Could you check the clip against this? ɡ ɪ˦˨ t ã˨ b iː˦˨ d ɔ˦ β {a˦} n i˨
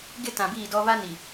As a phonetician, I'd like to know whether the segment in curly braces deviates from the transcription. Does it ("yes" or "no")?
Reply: no